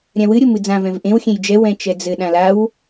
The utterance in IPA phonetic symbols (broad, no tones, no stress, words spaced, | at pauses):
ɾʲãwɨ ɾʲomɨd͡zã vɛ̃vʔẽw xʲẽjd͡ʒɛ wɛ̃t͡ʃɛd͡zɘ ɗãlaw